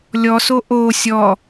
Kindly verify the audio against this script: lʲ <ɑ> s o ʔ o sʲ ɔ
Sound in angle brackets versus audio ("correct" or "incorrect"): incorrect